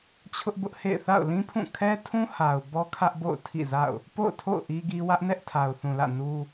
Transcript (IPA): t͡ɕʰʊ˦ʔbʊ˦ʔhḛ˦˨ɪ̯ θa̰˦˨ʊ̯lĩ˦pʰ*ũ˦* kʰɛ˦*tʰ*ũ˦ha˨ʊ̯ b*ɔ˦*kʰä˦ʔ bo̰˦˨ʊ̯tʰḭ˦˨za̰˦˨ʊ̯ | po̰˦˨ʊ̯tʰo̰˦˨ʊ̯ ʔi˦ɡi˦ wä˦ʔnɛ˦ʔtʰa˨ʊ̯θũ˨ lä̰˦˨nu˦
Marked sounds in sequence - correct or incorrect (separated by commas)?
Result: incorrect, correct, correct